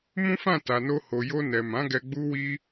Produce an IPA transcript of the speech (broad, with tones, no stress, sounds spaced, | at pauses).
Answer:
m ũ˦ f ã˦˨ t a˨ n o˧ h o˨ j o˧ n ɛ˨ m ã˨˦ ɡ ɛ˧ ɡ͡b u˦ w i˦